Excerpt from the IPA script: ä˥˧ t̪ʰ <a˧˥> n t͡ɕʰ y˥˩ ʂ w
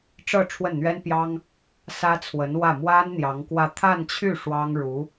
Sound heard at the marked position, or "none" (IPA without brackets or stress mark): a˥˧